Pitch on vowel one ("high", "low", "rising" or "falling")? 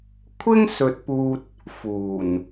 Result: high